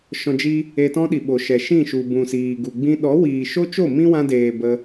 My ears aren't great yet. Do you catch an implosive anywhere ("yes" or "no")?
yes